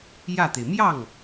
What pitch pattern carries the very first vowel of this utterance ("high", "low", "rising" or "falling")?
falling